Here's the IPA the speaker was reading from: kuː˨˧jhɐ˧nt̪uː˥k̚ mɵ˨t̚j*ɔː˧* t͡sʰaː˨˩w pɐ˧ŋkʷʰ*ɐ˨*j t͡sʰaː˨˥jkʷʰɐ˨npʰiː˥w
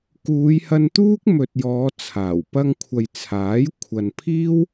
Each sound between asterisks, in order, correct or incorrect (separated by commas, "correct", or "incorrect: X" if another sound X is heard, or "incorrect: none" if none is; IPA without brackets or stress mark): incorrect: ɔː˨˧, correct